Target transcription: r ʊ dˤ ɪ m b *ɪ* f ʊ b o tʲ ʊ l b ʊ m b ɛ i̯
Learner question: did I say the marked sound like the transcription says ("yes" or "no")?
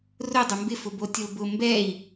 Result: yes